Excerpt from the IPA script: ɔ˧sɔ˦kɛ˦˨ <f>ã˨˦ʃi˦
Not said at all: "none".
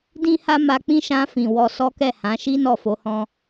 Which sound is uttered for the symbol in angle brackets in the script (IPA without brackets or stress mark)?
h